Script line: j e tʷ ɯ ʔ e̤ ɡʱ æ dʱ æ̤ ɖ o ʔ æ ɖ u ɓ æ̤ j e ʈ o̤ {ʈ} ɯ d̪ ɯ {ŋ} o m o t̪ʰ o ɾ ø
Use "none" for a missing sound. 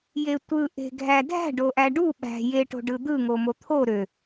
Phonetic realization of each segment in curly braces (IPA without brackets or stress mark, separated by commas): ɖ, ŋ